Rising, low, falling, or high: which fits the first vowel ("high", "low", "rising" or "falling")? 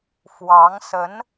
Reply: rising